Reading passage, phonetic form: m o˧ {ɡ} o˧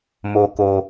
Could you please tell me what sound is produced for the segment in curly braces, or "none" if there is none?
k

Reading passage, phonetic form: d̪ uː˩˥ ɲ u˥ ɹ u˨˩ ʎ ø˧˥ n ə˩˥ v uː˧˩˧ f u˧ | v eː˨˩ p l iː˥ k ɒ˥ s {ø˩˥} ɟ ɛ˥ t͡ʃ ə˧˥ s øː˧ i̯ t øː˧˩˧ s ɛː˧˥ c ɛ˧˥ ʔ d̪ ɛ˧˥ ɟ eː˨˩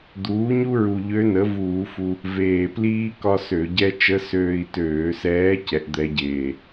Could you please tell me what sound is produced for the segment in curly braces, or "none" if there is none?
ø˧˩˧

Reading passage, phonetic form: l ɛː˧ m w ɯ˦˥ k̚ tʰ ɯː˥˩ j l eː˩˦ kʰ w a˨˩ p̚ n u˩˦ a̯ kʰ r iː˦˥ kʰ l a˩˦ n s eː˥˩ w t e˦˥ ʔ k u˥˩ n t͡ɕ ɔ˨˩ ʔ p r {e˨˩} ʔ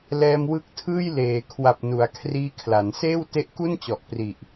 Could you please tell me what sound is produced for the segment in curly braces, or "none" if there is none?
i˨˩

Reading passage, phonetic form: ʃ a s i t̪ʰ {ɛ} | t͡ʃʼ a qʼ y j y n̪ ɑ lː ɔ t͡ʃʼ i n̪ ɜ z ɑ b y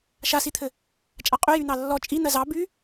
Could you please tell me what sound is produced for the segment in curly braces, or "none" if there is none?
ɘ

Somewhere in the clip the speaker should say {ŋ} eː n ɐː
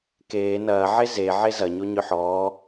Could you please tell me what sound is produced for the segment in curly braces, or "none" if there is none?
k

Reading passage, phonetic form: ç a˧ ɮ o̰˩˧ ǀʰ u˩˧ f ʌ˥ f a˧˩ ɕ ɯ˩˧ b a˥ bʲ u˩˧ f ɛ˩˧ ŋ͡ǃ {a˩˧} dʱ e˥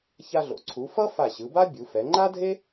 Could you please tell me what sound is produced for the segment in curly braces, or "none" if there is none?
a˥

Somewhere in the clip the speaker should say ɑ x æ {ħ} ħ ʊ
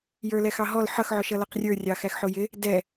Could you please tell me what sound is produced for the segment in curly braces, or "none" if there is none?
x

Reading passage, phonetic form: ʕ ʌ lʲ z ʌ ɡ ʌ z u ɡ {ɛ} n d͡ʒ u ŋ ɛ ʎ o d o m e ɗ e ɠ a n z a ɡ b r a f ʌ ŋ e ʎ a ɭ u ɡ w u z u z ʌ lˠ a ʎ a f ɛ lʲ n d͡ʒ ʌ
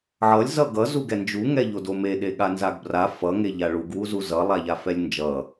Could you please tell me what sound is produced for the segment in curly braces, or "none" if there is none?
ɛ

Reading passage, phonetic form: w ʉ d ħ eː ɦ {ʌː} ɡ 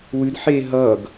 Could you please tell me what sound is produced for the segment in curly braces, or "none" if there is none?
ʌː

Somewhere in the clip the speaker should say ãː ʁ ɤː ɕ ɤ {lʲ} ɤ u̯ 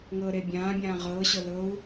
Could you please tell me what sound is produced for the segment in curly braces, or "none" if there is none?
l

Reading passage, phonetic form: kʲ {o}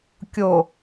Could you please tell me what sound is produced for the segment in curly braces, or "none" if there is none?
o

